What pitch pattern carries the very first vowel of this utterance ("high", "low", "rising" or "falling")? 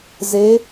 rising